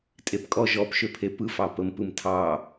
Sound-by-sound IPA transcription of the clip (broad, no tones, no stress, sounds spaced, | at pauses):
tʼ e p kʼ ɔ ʒ ɔ p ʃ ø pʰ e p ɯ f ɑ p ə m p ɯ m tʰ ɑ